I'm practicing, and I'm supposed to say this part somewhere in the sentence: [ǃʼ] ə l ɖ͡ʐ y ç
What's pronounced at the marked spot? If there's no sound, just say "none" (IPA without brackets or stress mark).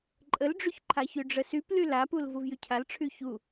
ǃʼ